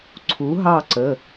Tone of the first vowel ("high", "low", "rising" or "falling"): rising